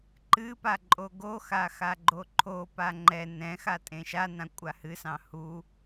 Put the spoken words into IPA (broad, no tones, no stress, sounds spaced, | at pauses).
ǃ ɨ p a ǃʼ o ɡ o x a x a ɡ͡ǃ o ǃʰ o p a ŋ͡ǃ ɛ n ɛ̃ x a tʼ ẽ ʃ a n ã kʷʼ a h ɨ s ɑ̃ h u